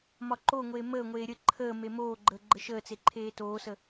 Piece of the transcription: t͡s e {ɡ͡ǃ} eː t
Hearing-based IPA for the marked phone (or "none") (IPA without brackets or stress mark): ǃʰ